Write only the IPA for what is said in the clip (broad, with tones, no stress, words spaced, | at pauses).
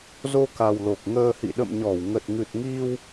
zo˧ka˨˩w lo˨˩k̚ŋəː˧hḭ˧˨ ɗə̰˧˨mɲɔ˧˩wŋə˨˩t̚ ŋɨ˨˩t̚ŋi˧w